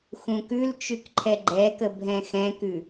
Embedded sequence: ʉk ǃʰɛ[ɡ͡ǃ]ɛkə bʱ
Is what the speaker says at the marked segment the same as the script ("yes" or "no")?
yes